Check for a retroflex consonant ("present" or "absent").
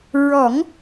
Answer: absent